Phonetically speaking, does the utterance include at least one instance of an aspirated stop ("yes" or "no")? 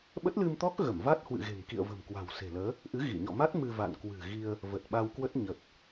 no